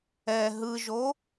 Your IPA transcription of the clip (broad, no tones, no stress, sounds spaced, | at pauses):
ɛ ɦ ɯ ʒ o